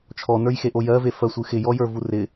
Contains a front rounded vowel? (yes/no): no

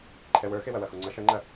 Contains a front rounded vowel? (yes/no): no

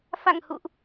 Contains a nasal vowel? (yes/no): no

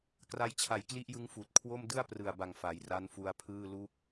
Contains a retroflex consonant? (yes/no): no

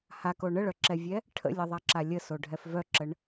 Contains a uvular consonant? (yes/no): no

